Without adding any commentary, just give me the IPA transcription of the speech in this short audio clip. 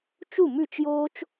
t͡ʃu˥˩mʉ˥˩t͡ʃjoː˥t͡ʃ

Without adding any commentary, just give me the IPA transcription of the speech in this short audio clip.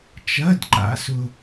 t͡ʃɐ˧˥˧d ǃa̰˧˥sʊ˥

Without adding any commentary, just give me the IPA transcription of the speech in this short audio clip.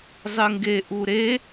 zˤɨŋɡeʔu ɾe

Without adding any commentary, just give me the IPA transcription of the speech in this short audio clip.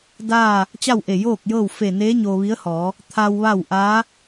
daː˥˨ | t͡ɕa˥˨wʔe˧˩joː˥˨k̚jɤː˥˨w fe˧˩neː˧˥ ɲoː˧ʋi˧˥ə̯hɔː˩˧ | t̪ʰa˧w ʋa˥˨w ʔaː˧˥

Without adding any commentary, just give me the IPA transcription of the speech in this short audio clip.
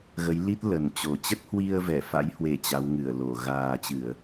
ɣə˨˦jli˦˥t̚ lə˨˩nt͡ɕo˨˩ t͡ɕə˦˥t̚hwi˧ə̯ vɛ˧˩ fa̰˧˥jhwe˧˩ t͡ɕa˨˦w ŋɨ˧˩ə̯lo˧˩ ɣaː˨˩t͡ɕɨ˧˩˨ə̯

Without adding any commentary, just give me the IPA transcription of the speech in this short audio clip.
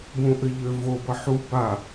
bũʔɘʎøvo bʌħu ba

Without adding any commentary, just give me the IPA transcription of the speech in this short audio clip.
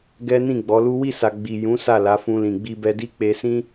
ɡɛ˦ nĩ˦˨ɡ͡bɔ˨˦lu˦ wi˦˨sa˨ ɡ͡bi˨ jũ˨˦ sa˦˨la˨˦fũ˧lĩ˨ ɡ͡bi˧bɛ˧di˦ k͡pe˧sĩ˦

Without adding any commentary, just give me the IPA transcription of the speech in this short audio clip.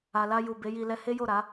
a˨la˧ju˨ be˨˦ji˧ lɛ˧ he˦jo˦˨ɾa˨˦

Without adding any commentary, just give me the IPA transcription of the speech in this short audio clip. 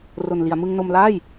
ro˨˩nli˩˦a̯ mɯ˧ŋno˧mlaː˥˩j

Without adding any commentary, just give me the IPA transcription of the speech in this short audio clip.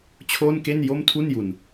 t͡ɕʰoː˥˩nke˥˩n jo˥˩mtʰu˥˩nju˨˩n

